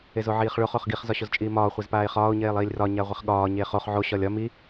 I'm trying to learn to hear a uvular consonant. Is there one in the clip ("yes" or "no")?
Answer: yes